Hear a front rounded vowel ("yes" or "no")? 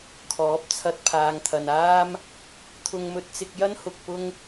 no